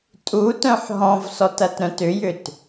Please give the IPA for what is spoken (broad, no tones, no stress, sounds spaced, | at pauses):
tʼ u t œ̃ ħ ɦ ɔ̃ v s ɔ t ɐ t ɾ œ̃ t ʏ j ʏ t